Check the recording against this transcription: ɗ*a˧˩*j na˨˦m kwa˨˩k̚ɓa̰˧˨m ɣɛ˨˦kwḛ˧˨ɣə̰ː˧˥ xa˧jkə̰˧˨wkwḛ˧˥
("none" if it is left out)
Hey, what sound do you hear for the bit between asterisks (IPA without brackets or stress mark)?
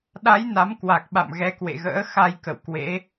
a˨˦